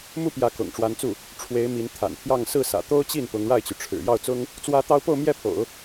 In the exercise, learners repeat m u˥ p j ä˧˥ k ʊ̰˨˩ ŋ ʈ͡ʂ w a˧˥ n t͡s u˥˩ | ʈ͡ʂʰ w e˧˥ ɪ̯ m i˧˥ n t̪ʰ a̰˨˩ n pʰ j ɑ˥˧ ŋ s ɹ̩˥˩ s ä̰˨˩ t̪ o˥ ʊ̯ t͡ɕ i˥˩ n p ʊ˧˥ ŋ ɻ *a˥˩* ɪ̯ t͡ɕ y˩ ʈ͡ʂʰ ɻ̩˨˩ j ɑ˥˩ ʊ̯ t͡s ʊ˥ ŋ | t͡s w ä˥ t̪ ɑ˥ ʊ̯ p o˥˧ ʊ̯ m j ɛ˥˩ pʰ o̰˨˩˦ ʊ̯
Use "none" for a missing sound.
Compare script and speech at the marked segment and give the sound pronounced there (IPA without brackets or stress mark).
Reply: a˥˩